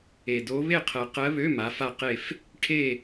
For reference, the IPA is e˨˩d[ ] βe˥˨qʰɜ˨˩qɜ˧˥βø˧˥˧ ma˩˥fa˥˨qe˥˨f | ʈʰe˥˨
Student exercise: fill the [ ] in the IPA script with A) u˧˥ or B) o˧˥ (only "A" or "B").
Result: B